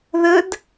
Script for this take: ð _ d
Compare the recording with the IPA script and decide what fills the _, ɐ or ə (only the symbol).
ə